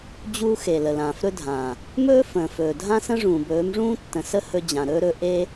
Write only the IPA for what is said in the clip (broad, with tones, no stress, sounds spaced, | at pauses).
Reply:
d͡ʑ uː˦ x e˨ l ə˨ l ãː˨ f ɾ ɵ˦ dʱ ãː˨ | m ɵː˦ f ə̃ː˨ f ɵː˨ dʱ ã˦ s ə̃˦ ʐ ũː˨ b ɵː˨˦ m ʐ ũː˦ tː ə̃˨ s ə˦ h ɵ˧ d͡ʑ ã˨ ɾ ɵː˦ ɾ ɵ˦ ʔ e˦